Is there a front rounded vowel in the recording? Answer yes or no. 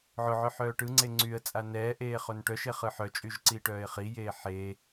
yes